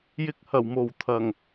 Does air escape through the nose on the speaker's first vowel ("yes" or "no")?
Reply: no